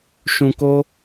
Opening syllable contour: low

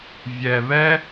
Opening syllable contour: low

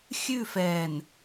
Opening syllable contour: falling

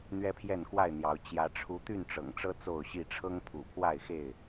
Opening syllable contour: high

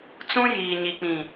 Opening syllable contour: high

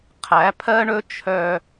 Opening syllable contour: rising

